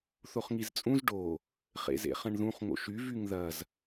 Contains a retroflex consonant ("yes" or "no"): yes